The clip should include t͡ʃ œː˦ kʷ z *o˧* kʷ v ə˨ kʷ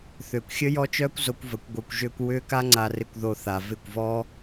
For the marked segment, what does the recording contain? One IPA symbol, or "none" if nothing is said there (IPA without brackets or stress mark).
o˧